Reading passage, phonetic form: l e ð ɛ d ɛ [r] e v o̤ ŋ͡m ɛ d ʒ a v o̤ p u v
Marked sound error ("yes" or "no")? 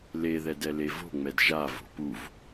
yes